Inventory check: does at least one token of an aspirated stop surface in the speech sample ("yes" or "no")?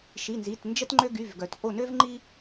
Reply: no